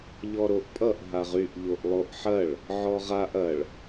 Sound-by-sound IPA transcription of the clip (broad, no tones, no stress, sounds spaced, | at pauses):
ʎ ɔ ɾ o ʔ pʼ ʌ ʔ ɦ a ʁ y ʔ ʎ o ʔ lˠ o ʔ ħ ɐ ɭ | ʕ ɔ ʁ a ʔ ɐ ɭ